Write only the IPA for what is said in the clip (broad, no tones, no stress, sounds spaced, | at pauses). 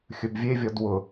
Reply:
xʲ ɵ b vʲ e vʲ ɔ d w ʊ